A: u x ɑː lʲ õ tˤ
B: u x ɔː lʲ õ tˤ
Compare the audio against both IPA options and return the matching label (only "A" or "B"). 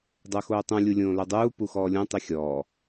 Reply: B